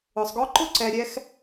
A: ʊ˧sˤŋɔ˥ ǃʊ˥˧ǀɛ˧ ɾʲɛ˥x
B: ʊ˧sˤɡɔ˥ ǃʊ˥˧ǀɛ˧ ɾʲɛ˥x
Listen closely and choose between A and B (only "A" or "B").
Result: B